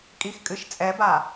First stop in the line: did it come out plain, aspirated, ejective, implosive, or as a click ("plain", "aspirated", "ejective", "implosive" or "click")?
ejective